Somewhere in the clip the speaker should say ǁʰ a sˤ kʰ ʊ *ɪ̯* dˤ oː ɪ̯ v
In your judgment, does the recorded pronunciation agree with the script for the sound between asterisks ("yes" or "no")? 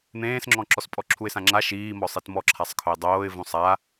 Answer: yes